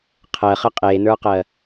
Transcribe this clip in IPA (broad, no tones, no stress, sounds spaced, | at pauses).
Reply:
qʰ ɜ χ ə qʼ e n ə˞ q ɜ